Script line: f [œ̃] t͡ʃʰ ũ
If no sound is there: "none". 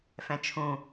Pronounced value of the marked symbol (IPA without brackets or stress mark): ɛ̃